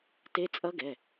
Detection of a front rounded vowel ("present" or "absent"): absent